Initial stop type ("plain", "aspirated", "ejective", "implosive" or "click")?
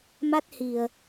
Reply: plain